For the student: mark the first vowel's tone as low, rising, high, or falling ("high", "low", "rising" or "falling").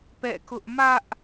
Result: falling